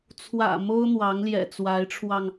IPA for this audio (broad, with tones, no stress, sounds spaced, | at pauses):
t͡sʰ w ä̰˨˩ m o˥ ʊ̯ n̪ w ɑ˧˥ ŋ l j ɛ̰˨˩ t͡s w a˧˥ ɪ̯ ʈ͡ʂʰ w ɑ˧ ŋ